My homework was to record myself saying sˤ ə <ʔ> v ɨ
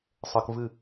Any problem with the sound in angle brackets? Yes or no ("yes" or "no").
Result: yes